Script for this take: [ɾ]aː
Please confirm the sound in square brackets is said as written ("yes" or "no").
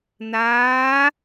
no